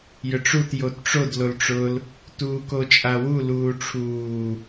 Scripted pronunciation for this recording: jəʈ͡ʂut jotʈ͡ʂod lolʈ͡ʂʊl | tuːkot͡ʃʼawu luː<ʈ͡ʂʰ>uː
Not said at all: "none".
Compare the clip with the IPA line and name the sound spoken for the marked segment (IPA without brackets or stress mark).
ʈ͡ʂʰ